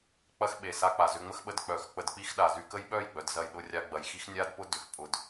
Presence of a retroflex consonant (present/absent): absent